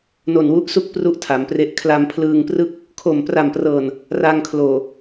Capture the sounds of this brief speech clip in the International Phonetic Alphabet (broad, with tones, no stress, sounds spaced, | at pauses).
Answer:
n o˨˩ n w u˦˥ ʔ s u˥˩ k̚ p r u˦˥ ʔ tʰ a˩˦ m p r e˦˥ ʔ kʰ l a˧ m pʰ l ɯː˧ ŋ p r ɯ˥˩ k̚ | kʰ o˨˩ m p r a˨˩ m p r ɤː˨˩ n | r a˧ ŋ kʰ l oː˨˩